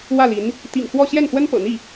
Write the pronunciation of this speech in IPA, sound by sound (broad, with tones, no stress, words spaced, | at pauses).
wä˥˩li˧˥n | t̪ḭ˨˩ŋxwɔ˥˧ ɕjɛ˥˩nxwə˥npɤ̰˨˩n̪i˥˩